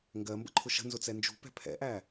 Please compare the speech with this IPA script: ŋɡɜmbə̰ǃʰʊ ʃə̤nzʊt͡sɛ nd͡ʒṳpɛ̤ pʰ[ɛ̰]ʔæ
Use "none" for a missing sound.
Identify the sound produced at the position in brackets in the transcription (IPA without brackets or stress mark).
ɛ̰